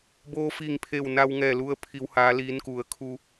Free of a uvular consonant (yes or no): yes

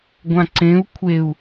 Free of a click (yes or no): no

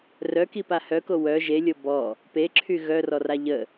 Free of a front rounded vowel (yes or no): no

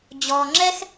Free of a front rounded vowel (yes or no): yes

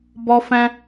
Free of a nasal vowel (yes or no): no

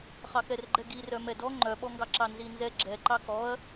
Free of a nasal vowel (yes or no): yes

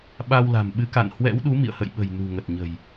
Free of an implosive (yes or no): no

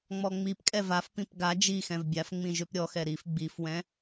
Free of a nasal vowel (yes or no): no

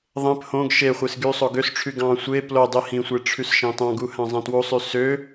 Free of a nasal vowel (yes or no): no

